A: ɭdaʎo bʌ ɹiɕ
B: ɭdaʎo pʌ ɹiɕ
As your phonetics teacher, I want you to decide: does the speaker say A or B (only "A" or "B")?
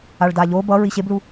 A